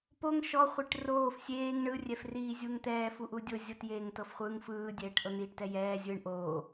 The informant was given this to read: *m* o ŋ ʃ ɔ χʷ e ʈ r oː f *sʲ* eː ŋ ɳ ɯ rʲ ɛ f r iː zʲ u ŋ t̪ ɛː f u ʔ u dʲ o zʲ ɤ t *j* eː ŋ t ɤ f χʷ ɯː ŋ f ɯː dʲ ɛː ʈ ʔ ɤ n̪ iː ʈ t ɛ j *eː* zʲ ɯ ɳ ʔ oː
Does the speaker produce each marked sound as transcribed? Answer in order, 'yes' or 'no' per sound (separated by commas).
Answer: no, yes, yes, no